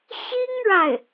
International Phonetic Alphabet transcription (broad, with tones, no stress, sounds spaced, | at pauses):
ɕ i˥ ŋ ɻ a˥˩ ɪ̯